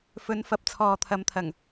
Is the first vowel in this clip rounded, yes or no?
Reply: yes